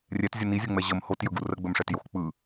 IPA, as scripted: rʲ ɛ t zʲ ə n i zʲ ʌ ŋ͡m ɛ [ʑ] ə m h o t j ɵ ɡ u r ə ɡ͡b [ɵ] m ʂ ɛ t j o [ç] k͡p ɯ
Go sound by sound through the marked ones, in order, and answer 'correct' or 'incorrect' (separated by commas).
correct, correct, incorrect